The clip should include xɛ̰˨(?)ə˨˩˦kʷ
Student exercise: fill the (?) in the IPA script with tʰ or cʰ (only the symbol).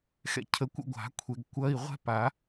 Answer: cʰ